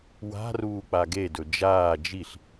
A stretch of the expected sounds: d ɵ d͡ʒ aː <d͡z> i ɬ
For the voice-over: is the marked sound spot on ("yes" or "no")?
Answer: no